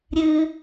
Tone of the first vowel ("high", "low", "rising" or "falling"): high